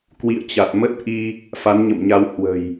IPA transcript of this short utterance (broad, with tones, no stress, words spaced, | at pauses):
kwḭ˧˨ə̯t͡ɕa˨˩t̚mə˦˥t̚ʔi˧ | fa˨˦nɲə̰˧˨mɲa˧w hwə̤˨˩j